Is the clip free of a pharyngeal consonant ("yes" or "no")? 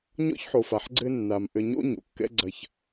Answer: no